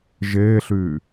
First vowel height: mid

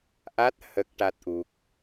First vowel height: low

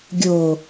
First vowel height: mid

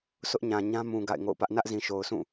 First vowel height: high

